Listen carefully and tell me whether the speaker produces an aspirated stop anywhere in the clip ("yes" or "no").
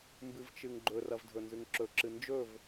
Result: no